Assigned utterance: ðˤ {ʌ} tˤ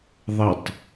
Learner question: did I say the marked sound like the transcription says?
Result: yes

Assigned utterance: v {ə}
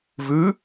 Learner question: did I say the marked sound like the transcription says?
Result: no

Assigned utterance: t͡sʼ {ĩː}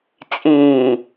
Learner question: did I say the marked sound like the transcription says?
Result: yes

